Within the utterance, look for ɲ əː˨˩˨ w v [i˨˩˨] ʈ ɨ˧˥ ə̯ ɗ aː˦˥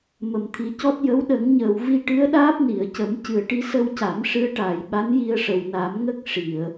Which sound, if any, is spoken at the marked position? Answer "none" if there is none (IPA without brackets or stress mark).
i˧